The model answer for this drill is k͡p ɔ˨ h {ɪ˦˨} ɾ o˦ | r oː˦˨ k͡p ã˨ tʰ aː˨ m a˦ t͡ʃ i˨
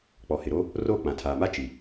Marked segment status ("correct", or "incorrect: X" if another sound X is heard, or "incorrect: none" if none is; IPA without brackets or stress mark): incorrect: ɪ˨